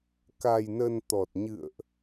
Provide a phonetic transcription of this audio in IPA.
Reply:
k a˧ j n ə˧ n t̪ ɔ˨˩ t̚ ɲ ɨ̰˧˨ ə̯ ʔ

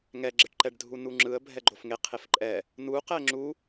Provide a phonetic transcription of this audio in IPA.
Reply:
ŋ ɛ ɡ͡ǁ e ʈ ǃ ɛ ɖ dʱ u n u ŋ͡ǁ ɯ ə̯ bʱ ɛ ɡ͡ǃ o f ŋ e qʰ e f ǃʼ ɛ | n u q ɛ ŋ͡ǁ u

